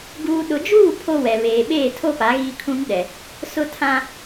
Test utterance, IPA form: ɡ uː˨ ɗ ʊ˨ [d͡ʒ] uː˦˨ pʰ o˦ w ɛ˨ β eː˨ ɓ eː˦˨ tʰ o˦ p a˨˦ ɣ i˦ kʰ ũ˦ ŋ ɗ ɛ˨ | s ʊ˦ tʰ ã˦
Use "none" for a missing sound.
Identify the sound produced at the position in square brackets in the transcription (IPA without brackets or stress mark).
d͡ʒ